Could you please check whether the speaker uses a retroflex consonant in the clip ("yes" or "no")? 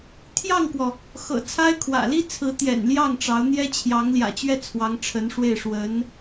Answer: yes